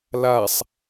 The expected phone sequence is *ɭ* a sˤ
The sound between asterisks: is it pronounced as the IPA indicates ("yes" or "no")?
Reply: no